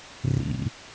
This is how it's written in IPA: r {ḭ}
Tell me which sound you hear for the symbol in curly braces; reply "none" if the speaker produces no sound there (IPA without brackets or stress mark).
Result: ḭ